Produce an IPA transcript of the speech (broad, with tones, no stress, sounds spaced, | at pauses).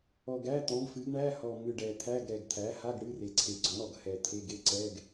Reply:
ɔ˨˩ ɡ æ˧˥˧ t̪ ɔ̃˩˥ ɡ f ɨ˩˥ ɡ ɳ æ˧˥˧ h ɔ˨˩ m ɨ˨˩ ɖ ɛ˨˩ t̪ʰ æ˧˥˧ ɡ ɾ ɛ˨˩ ɡ t̪ʰ æ˩˥ h a˧˥˧ ɡ ɽ ɨ˧˥˧ r e˨˩ ǀʰ e˨˩ ɡ͡ǀ ɔ̃˩˥ ɽ ɔ˨˩ ɡ h ɛ˨˩ t̪ʰ e˧˥˧ ɡ e˧˥˧ ǀ ɛ˧˥˧ ɡ